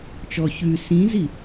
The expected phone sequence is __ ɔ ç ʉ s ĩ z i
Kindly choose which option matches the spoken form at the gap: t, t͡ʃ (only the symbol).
t͡ʃ